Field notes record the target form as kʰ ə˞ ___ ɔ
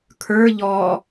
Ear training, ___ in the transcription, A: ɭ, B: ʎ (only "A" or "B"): B